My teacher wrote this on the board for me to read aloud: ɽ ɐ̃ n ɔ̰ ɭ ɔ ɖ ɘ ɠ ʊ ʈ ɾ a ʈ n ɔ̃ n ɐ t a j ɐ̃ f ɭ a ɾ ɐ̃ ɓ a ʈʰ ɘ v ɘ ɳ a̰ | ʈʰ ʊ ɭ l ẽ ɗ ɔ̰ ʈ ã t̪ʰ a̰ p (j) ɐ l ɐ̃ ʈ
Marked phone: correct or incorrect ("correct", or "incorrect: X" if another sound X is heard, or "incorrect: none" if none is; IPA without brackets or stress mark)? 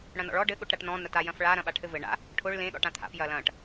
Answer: correct